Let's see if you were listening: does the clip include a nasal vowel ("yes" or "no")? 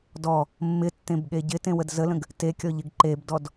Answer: yes